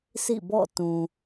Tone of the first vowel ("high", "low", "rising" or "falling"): falling